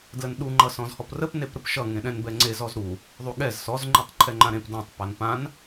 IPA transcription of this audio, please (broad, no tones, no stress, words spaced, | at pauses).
dlənɗu ŋ͡ǃʌsɔ̃zhɔprəp nepɾəpʃʌ ŋẽɗɛ̃nbɛŋ͡ǀe zɔzɾu | ðˤuɠɛz sɔz ŋ͡ǃetˤǃʰɛŋ͡ǃãɾẽp dãtˤ panpãn